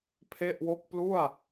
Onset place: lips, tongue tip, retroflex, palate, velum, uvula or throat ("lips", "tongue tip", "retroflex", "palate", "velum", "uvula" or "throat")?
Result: lips